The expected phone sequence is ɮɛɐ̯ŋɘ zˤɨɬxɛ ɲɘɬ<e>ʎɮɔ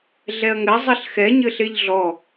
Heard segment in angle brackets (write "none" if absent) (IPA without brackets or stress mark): e